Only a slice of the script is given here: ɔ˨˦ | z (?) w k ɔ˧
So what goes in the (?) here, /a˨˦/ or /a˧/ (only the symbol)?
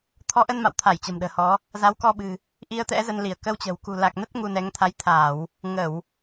a˨˦